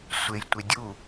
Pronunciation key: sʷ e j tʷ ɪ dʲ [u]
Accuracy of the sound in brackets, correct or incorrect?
correct